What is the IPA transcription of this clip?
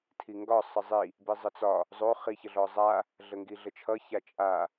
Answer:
tʰ i ŋ ɡ ɒ sˤ ə zˤ i | b i zˤ ə t͡s ɒ | zˤ o χ i ç ə ɮ ɔ zˤ a | ɮ ə ŋ ɡ i ɮ ə t͡ʃʰ ʌ ç a t͡ʃʼ a

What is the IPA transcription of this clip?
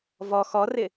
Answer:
v ɔ x ɔ r ɪ

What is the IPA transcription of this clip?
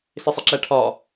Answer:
s ɪ sˤ ə ǁ æ ʈʰ ɒ

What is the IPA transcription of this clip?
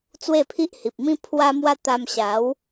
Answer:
t͡s w e˥˧ pʰ i˦ ʔ h i˨ p̚ m ĩ˦ pʰ w a˦ m w a˦ t̪ a˧ m ɕ a˨˦ w

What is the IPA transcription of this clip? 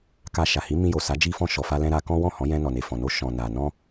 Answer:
k a˧ ʃ a˨ h i˨˦ m ĩ˧ j o˨ s a˨˦ d͡ʒ i˧ f ɔ̃˧ ʃ ɔ˨ f a˧ l ɛ̃˧ ɾ a˧ k ɔ̃˦ w ɔ̃˦˨ h ɔ̃˨˦ j ɛ̃˧ n ɔ˨ n e˨ f ɔ̃˨ n o˧ ʃ ɔ̃˨ n a˨ n ɔ̃˧

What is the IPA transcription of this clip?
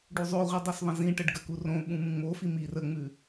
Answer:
ɖ u zˤ o ʁʷ i dˤ u s ðˤ ə̃ z ĩ ʈ ə ɖ ɡ ə k u r õ ɓ ũ m ũ ŋ͡m o f i m i r ə ŋ͡m ʉ

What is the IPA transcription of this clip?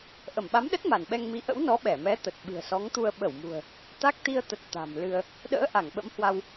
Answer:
ʔ ə˧˩ m ɓ a˨˦ m ɗ ə˦˥ t̚ m a˧˩ n ɓ ɛ˧ ŋ m i˨˦ ʔ ə̰˧˥ w n ɔ˨˦ ɓ ɛ˧˩ m ɛ˨˦ t̪ ə˨˩ t̚ ɓ ɨ̤˨˩ ə̯ s ɔ˨˦ ŋ t̪ u˧ ə̯ ɓ ə˧˩ w m ṳ˨˩ ə̯ | t̪ a˦˥ k̚ t̪ i˧ ə̯ t̪ ə˨˩ t̚ t̪ a̤˨˩ m l ɨ˧ ə̯ | ɗ ə̰ː˧˥ ʔ a˧˩ ŋ ɓ ə̰˧˥ m h w a˧ w

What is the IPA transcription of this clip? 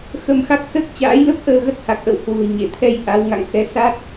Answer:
x ə˧ m x a˦˥ k̚ s əː˦˥ k̚ t͡ɕ a̰ː˧˥ j l ə˦˥ p̚ ʔ əː˧ ɣ ə˦˥ t̚ h a˨˩ k̚ ʔ ə̰˧˨ w h w ṳ˨˩ ə̯ ɲ e˧˩ t̪ʰ ɛ˧ j ʔ a˨˦ w ŋ a̰˧˨ ŋ x ɛ˧ s a˦˥ t̚

